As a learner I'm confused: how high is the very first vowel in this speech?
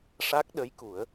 low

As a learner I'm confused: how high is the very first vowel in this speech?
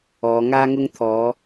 mid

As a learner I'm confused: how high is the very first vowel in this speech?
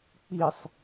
high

